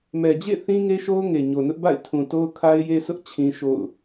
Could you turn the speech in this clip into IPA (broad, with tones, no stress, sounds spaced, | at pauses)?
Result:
m ɛ˨ d͡ʑ ḛ˦˨ θ ĩ˦ ŋ e˦ ʃ o˦ ʊ̯ ŋ e˨ ɲ o˨ n ʊ˦ ʔ b a̰˦˨ ɪ̯ tʰ ũ˨ t o˦ ʊ̯ kʰ a˦ ɪ̯ j e˦ sʰ ʊ˦ ʔ t͡ɕʰ ĩ˦ ʃ o̰˦˨ ʊ̯